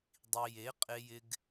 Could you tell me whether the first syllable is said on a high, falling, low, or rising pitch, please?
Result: low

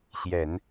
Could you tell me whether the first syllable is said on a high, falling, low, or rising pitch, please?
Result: low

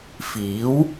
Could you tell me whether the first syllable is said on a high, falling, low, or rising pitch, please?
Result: rising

